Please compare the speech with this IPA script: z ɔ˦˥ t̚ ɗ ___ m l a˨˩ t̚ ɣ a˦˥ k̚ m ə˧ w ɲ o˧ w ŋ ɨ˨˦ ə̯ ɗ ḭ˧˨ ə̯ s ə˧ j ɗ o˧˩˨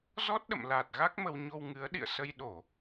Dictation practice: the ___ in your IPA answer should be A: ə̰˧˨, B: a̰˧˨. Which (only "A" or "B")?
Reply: A